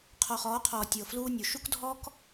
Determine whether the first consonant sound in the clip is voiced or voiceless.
voiceless